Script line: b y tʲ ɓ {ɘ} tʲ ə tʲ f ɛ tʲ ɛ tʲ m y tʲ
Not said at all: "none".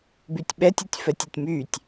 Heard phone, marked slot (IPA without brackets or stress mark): ɛ